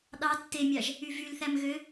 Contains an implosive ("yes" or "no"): yes